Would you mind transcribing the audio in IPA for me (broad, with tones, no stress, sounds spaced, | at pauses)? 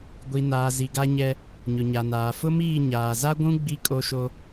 ɡʷ i˨ n aː˨ z i˨ ɡ a˦ ɲ ɛ˦ | ɲ ʊ˨ ɲ a˨ n aː˨ f ʊ˦ m iː˦˨ ɲ aː˨ z a˦ ɡʷ ũ˦ ɡ͡b i˦ kʼ o˦ ʃ o˦